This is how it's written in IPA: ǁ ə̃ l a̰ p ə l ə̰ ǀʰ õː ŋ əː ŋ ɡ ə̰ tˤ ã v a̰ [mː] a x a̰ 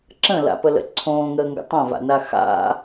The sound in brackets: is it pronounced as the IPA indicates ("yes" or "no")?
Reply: no